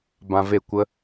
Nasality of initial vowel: nasal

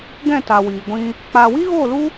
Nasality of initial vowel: nasal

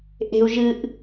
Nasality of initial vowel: oral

